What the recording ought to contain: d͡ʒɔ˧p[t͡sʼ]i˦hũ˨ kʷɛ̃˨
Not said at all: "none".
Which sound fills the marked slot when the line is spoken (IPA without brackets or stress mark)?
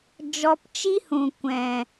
t͡ʃ